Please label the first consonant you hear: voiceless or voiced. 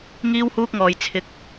voiced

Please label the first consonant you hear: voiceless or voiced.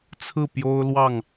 voiceless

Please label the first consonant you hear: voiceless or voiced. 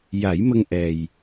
voiced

